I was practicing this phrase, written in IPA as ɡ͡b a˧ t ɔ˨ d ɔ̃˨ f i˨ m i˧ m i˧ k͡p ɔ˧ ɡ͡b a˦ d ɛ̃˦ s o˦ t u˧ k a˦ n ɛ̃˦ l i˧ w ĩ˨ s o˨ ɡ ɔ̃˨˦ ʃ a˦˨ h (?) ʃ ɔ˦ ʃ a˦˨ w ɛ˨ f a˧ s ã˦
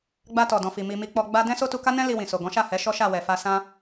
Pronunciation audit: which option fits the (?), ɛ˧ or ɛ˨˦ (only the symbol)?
ɛ˨˦